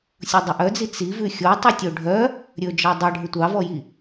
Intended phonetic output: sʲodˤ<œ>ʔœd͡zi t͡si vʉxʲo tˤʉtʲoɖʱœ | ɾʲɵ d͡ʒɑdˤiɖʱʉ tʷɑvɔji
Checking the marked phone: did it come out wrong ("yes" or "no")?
yes